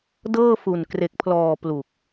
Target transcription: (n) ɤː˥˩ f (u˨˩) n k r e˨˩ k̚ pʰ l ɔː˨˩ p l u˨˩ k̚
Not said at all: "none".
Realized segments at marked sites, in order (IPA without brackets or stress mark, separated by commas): d, u˨˩